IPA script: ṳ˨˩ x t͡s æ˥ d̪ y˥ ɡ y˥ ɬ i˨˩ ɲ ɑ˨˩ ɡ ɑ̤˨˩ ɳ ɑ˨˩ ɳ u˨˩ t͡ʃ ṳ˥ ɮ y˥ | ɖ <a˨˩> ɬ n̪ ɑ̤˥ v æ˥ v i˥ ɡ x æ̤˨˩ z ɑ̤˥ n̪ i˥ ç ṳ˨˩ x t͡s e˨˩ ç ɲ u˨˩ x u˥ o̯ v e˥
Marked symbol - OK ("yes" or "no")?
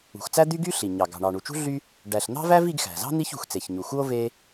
no